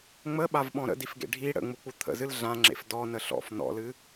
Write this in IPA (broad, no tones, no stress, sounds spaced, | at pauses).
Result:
ŋ͡m ə ɓ a v ɓ ɔ̃ ɾ ə̰ d i f ɡ ḛ ɖʱ i ɽ ə̰ ŋ͡m u k͡p u t̪ʰ ə̰ z ɨ l ɮ ã ŋ͡ǁ ḛ f d ɔ n ə ɬ ɔ̰ f n ɔ̰ l ɨ